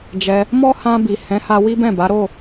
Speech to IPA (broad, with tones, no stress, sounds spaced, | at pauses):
d͡ʒ ɛ˧ | m ɔ˦ h ã˧ b i˨ h ɛ̃˨˦ h a˧ w i˦ b ɛ̃˦˨ b a˨˦ ɾ o˦˨